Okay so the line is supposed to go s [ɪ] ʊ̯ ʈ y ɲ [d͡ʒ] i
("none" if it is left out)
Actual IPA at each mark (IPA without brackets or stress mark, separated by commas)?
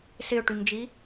ɪ, d͡ʒ